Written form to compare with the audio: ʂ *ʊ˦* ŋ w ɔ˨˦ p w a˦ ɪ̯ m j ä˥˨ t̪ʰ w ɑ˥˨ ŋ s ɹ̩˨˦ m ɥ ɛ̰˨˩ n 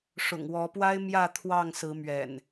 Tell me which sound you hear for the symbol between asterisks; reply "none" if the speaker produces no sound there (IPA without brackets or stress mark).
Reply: ʊ̰˨˩